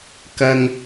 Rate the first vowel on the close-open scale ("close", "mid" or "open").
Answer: open